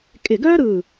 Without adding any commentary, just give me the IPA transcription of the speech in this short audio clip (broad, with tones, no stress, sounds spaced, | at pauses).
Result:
kʼ ɪ˧˩ ɡ œː˥ ɾ ɯː˧˩